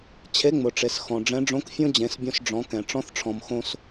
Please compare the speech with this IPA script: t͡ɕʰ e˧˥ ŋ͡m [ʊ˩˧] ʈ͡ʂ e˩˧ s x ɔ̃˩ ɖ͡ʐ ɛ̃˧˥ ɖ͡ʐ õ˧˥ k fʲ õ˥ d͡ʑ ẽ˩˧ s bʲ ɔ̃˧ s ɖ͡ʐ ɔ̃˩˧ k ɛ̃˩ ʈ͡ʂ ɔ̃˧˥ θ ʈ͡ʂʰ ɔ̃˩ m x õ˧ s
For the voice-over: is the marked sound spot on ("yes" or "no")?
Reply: yes